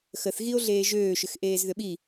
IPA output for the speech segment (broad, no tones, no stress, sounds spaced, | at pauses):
x ə θ ɣ i o̯ ɮ eː ʒ øː ʃ ʏ x ʔ eː z ð ʏ ɓ i